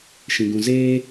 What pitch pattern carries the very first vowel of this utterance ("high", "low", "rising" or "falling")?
low